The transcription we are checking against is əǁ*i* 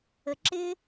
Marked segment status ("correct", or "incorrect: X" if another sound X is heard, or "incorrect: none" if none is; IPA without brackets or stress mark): incorrect: ɪ